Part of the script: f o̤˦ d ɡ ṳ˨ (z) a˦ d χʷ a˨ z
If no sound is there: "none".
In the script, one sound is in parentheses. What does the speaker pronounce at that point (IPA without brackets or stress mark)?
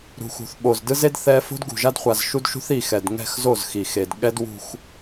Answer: ʒ